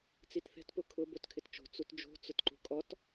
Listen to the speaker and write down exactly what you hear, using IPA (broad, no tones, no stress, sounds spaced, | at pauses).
t͡s i t θ ɛ̤ t p ʊ kʰ ʊ b o t kʰ ɪ t t͡ʃ o̤ t͡s u t d͡ʒ o̤ t͡s ʊ t ǃ ṳ kʼ ɔ t